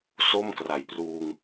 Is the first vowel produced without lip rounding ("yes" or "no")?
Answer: no